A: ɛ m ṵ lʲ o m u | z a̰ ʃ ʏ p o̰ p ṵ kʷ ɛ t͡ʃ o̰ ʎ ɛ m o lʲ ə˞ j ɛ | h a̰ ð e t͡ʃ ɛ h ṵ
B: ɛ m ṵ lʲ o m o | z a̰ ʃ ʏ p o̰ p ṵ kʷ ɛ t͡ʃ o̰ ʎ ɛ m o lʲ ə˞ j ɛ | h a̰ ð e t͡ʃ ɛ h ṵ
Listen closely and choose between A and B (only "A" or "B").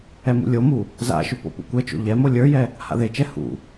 A